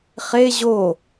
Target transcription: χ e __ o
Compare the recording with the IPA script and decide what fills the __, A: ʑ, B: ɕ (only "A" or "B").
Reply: A